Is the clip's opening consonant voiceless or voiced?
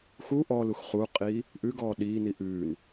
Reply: voiceless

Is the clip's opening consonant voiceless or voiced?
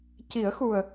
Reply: voiceless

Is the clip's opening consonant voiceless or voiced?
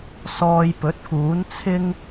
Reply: voiceless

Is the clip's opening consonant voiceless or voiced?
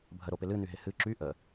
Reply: voiced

